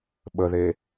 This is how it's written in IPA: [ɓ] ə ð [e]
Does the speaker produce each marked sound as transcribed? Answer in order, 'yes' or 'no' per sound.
yes, yes

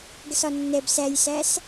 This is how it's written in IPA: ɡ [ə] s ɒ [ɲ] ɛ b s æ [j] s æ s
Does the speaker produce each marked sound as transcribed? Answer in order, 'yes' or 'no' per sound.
yes, no, yes

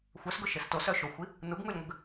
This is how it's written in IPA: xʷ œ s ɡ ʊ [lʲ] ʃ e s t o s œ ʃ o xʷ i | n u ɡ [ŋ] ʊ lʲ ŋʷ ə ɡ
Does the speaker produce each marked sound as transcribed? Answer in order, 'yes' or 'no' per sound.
no, yes

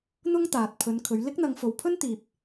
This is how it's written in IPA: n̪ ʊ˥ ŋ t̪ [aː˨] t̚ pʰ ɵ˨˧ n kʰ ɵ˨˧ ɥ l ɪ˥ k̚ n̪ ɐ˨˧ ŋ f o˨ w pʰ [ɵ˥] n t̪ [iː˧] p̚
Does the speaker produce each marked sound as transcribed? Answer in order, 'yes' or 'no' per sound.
yes, yes, no

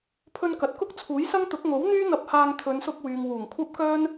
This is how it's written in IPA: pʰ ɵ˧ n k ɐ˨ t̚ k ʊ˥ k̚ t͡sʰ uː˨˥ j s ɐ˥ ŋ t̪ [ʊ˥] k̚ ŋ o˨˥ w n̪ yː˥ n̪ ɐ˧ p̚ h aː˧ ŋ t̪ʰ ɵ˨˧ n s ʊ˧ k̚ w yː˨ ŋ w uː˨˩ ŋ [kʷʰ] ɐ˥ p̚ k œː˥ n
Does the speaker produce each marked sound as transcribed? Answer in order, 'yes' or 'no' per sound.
no, yes

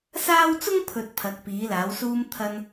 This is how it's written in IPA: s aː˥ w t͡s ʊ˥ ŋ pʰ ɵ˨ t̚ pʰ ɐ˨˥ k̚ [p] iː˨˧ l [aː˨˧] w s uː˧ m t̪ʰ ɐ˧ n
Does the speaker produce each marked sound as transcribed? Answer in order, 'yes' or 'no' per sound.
yes, yes

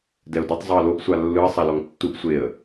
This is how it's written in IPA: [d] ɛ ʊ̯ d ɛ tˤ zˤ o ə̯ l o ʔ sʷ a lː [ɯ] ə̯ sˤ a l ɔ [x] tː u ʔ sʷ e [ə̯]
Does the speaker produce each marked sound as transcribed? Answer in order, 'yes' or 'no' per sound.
yes, yes, no, yes

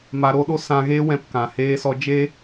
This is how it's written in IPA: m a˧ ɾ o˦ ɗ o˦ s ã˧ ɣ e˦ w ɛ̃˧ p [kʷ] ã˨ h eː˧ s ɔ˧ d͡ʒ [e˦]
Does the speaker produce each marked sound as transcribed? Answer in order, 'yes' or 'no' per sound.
no, yes

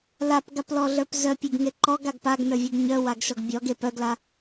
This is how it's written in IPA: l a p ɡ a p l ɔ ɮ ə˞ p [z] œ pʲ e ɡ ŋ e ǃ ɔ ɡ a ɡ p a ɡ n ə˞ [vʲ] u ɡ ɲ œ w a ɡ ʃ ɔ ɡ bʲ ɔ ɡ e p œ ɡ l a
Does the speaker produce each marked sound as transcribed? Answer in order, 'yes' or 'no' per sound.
yes, yes

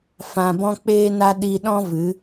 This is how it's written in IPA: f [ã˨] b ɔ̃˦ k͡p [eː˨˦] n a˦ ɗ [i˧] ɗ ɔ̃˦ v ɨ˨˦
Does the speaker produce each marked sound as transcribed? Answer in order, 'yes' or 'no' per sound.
yes, no, yes

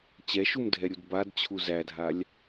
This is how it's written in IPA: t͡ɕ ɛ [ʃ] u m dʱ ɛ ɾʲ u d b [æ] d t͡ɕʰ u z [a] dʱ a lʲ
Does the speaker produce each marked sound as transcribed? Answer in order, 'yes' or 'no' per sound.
yes, no, no

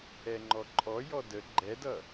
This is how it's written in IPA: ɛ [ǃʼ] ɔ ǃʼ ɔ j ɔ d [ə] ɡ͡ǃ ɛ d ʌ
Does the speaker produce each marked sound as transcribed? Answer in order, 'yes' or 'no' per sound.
no, yes

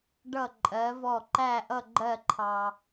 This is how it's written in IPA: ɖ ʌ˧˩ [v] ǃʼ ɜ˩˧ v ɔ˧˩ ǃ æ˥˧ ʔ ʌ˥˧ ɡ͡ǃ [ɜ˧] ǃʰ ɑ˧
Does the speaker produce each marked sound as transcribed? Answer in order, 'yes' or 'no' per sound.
no, no

